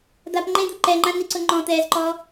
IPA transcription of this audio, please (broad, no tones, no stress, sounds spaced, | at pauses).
d̪ a p ŋ͡ǃ ẽ d̪ u ǃ ɛ ŋ͡ǃ ã n i ǀ ʊ ŋ͡ǃ ɔ̃ t̪ ɛː z ǃ ɔ